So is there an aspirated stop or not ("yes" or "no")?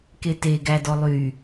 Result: no